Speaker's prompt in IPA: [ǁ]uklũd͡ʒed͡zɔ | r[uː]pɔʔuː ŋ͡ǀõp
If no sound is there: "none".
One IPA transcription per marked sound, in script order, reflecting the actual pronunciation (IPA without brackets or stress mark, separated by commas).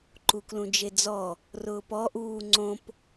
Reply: ǃ, ʊː